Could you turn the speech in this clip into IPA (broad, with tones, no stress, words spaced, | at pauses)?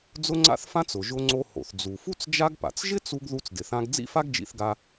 d͡zʊ˥ŋ͡ǀa̰˥θfã˥t͡s ʊ˩ʒʊ˧ŋ͡ǀo˧ ho̰˩θd͡zu˩fu˥t͡s d͡ʒa˥ɡpa̰˩t͡s ʒɪ˥t͡su˧ɡ ðu˧t͡sdɪ˩θã˧ɡ d͡zḭ˥fa˥ɡd͡ʒḭ˧θɡa˧